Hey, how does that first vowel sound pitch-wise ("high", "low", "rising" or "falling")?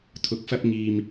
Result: rising